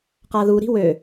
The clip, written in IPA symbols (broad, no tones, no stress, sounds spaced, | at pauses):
q a ð u ɾ i̤ w ø